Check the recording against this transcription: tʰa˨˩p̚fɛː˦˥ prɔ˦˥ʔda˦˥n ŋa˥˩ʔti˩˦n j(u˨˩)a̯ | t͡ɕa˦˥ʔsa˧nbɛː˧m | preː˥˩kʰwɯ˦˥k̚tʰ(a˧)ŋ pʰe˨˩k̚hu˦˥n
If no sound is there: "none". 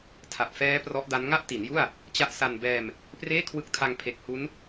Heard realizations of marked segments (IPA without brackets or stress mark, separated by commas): u˥˩, a˧